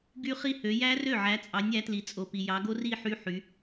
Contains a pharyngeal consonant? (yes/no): yes